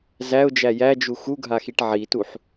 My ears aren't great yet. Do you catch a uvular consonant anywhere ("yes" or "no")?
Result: no